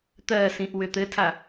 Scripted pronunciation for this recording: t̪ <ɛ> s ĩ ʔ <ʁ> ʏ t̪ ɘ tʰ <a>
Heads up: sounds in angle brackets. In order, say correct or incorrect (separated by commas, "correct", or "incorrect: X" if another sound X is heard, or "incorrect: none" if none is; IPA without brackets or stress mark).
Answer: incorrect: ɜ, incorrect: w, correct